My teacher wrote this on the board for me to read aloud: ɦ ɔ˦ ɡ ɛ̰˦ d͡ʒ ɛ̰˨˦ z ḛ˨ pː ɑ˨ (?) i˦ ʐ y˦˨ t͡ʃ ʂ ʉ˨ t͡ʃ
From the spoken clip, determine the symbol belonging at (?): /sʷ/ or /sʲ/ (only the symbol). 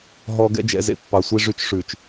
sʷ